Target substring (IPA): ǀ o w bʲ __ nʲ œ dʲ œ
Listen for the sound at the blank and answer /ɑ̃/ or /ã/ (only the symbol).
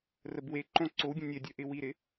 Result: ã